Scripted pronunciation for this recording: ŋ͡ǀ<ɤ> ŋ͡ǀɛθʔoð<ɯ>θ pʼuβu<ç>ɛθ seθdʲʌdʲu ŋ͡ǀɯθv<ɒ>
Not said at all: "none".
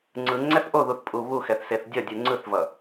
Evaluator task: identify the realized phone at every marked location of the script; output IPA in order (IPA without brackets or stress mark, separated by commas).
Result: ɯ, u, x, ʌ